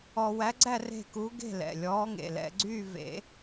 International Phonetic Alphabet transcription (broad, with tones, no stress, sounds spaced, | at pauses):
ɔ˧ w æ˧˥ ɡ͡ǀ æ˥˧ r e̤˥˧ k u˧˥ ɡ e̤˥˧ l ɛ̰˩˧˩ lʲ ɔː˧˥ ŋ ḛ˩˧˩ l ɛ̰˧ ɡ͡ǀ yː˥˧ v ḛ˨˩˦